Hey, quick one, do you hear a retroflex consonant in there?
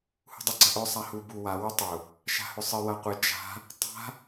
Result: no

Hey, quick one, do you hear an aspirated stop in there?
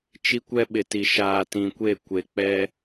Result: no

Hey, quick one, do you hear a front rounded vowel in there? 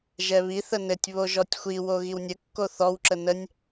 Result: no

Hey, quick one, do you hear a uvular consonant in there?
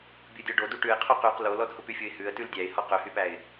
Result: yes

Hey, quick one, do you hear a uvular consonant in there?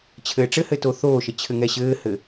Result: no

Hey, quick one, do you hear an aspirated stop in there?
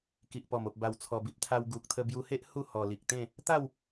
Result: yes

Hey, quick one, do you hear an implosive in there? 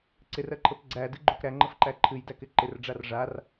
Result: no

